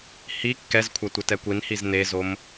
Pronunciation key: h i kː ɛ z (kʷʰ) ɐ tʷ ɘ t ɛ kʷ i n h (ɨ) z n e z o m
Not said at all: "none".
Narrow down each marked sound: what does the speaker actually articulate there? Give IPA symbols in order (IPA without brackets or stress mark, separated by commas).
kʷʰ, i